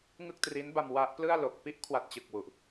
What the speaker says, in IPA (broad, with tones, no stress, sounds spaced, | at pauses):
ŋ ɯ˥˩ k̚ t r i˦˥ n b a˧ m w a˦˥ ʔ p l ɯ˥˩ a̯ l o˨˩ k̚ p i˥˩ ʔ kʰ w a˨˩ t̚ t͡ɕ ɯ˨˩ k̚ w u˨˩ ʔ